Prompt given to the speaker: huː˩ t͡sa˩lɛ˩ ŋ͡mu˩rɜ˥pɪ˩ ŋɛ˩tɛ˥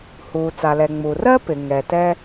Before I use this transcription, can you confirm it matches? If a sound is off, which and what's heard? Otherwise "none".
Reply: none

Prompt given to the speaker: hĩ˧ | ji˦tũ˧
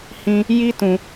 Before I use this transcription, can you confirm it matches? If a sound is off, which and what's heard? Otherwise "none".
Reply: none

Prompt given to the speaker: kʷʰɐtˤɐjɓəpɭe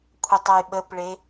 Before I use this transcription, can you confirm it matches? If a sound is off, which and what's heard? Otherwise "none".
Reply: none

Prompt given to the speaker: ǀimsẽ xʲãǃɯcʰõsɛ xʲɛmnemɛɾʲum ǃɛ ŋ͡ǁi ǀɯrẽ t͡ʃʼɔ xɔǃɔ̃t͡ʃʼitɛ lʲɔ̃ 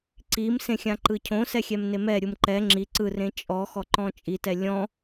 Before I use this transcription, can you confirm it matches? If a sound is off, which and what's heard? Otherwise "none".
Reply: none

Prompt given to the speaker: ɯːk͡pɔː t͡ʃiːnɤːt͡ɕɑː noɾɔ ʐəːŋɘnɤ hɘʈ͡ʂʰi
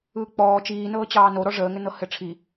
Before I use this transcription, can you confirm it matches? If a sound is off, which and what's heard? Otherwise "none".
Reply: none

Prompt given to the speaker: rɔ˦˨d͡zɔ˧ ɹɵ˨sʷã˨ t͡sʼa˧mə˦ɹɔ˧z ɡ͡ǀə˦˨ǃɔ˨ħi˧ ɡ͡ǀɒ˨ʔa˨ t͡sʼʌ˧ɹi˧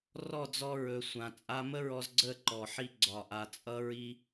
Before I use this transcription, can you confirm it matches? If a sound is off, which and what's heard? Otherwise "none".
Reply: none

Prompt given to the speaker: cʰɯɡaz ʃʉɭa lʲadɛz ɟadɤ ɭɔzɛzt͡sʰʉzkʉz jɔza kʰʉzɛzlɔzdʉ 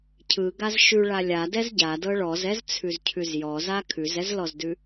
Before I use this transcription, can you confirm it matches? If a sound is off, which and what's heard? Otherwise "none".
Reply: k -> cʰ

